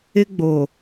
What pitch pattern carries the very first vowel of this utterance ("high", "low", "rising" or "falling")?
high